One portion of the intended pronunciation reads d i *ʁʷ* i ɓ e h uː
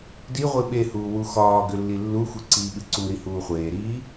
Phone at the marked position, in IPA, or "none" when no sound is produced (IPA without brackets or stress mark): ʁʷ